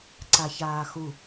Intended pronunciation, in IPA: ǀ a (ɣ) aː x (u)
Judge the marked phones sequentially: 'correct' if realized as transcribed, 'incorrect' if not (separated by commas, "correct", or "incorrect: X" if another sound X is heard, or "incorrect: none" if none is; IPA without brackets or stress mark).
incorrect: ç, correct